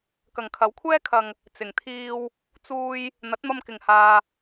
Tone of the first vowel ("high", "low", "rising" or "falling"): low